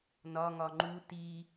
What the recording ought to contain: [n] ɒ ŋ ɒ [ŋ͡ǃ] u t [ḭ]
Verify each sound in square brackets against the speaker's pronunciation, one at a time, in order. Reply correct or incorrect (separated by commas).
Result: correct, correct, incorrect